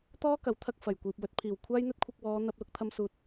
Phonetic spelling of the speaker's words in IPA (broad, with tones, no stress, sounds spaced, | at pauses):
t̪ ɔː˥ k ɐ˨˥ w t̪ʰ ɐ˧ k̚ f ɐ˨˩ j kʷ iː˨ p̚ w ɵ˧ t̚ pʰ iː˨˩ w kʷʰ aː˥ j n̪ ɵ˥ t̚ kʷʰ ɐ˧ k̚ w ɔː˨˧ n̪ ɐ˧ p̚ l ʊ˧ k̚ t̪ʰ ɐ˧ m s uː˨ t̚